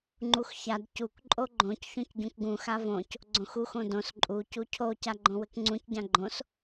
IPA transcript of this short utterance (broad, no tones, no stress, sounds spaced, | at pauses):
ŋ͡ǃ u x ç a d c u k ǃʼ o ɡ͡ǃ õ c ç õ c ɟ ũ k ɡ ũ x a v õ c | ɡ͡ǀ õ x u x õ d õ s ǃʼ u c u cʰ o c a ɡ͡ǃ õ w ɘ k ŋ͡ǀ ũ c ɟ ã ɡ͡ǃ õ s